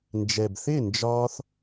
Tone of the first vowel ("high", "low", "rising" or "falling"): low